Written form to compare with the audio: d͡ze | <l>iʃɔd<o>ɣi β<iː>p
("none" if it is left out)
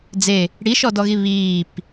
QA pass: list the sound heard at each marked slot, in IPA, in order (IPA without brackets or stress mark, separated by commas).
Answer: ɽ, ɔ, iː